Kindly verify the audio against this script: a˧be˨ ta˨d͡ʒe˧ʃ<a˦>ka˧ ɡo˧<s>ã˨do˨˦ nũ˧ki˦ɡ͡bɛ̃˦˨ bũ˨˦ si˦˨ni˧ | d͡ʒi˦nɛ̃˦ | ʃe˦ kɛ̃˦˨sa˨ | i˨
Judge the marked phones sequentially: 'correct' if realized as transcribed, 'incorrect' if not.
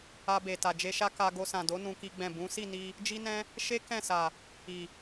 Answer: correct, correct

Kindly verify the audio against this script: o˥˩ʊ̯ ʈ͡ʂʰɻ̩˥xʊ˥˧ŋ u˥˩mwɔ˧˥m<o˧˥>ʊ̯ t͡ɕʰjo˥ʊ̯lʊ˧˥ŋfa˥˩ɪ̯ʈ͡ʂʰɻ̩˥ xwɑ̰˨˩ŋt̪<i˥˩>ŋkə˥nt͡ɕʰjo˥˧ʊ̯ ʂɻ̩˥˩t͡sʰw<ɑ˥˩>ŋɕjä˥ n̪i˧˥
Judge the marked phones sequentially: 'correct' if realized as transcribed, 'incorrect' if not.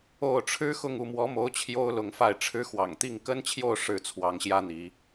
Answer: correct, correct, incorrect

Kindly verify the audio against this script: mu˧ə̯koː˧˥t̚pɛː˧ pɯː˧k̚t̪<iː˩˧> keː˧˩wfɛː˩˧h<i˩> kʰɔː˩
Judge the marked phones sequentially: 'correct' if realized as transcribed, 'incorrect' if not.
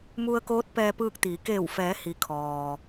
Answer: correct, correct

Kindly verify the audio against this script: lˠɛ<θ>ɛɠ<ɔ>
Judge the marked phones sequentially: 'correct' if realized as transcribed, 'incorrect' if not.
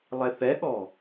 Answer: correct, correct

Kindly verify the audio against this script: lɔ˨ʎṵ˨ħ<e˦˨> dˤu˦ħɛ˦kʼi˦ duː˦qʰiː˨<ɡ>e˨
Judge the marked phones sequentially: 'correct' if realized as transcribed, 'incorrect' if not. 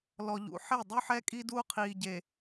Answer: correct, incorrect

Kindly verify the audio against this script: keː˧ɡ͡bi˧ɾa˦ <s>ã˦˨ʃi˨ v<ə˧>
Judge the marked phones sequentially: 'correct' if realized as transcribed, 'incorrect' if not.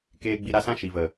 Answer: correct, incorrect

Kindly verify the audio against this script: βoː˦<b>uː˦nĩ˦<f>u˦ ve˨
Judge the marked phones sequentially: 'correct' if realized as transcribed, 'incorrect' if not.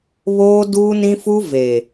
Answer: incorrect, correct

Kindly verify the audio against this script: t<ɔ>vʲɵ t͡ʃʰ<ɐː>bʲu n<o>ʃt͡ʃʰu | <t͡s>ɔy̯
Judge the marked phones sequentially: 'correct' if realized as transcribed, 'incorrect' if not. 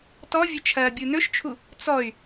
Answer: correct, correct, incorrect, correct

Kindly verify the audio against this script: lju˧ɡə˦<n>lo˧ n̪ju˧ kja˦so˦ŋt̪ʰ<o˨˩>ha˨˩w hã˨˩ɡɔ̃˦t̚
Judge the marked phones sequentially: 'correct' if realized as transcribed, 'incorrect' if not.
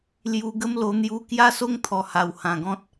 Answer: incorrect, incorrect

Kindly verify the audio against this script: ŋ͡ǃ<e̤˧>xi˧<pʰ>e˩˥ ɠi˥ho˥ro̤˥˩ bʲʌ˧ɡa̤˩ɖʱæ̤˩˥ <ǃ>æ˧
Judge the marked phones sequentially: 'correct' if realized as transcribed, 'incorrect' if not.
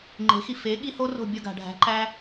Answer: incorrect, incorrect, correct

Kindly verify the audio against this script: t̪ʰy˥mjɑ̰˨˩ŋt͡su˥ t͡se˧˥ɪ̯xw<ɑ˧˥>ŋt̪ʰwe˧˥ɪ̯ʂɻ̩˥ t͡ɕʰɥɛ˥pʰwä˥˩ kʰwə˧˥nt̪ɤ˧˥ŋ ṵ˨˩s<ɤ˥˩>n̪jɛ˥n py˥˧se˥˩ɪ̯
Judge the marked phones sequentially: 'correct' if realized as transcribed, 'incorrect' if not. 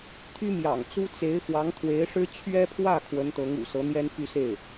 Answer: correct, incorrect

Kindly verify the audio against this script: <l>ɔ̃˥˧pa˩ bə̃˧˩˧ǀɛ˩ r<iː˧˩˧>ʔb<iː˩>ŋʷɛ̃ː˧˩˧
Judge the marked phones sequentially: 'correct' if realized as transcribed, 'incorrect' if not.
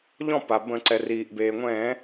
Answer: incorrect, incorrect, incorrect

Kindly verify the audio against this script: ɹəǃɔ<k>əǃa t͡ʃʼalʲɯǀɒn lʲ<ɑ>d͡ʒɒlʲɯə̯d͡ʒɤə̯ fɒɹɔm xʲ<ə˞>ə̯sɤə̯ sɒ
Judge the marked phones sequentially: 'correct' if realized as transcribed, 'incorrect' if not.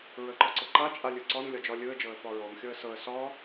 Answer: incorrect, incorrect, incorrect

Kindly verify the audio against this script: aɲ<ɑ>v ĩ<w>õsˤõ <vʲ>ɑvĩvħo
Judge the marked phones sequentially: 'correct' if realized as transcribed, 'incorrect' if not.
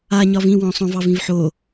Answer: incorrect, correct, incorrect

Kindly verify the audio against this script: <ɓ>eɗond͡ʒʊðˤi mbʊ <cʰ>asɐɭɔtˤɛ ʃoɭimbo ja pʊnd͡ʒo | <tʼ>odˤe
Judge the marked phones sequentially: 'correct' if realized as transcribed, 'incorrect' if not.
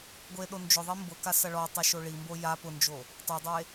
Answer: incorrect, incorrect, incorrect

